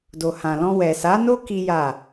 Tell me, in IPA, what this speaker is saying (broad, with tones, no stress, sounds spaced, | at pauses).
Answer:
d o˨ h ã˨ l ɔ̃˧ w ɛ˨ s a˨˦ n o˦ k i˦ j a˦˨